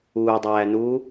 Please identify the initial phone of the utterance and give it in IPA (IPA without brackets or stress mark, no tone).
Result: uː